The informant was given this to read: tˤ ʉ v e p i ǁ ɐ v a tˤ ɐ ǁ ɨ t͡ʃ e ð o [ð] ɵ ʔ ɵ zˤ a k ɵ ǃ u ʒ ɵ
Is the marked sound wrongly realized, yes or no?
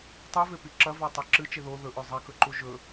no